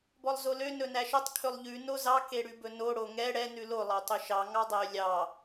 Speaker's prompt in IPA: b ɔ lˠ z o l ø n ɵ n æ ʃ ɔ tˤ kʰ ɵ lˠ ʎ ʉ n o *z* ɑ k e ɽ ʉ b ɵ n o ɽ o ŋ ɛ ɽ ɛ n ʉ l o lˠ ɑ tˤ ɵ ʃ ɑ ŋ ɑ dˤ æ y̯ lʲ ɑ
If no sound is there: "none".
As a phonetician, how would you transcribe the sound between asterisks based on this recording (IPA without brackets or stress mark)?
z